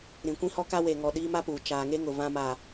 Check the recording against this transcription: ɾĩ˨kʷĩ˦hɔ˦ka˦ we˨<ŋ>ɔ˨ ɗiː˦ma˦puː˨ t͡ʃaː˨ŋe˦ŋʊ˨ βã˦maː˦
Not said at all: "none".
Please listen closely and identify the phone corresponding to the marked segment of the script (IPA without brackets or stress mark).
ŋ